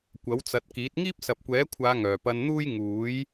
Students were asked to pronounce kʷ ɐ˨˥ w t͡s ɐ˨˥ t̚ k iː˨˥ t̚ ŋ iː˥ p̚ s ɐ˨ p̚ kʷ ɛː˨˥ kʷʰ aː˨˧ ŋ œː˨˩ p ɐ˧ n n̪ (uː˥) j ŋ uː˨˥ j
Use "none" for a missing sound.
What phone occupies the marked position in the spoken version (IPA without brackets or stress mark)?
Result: uː˥